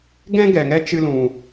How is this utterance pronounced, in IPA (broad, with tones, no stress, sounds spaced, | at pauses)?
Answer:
ɡ ɛ̃˦ ɡ ɛ˨ ŋ ɛ˦ t͡ʃ ɨ˦ l ũ˧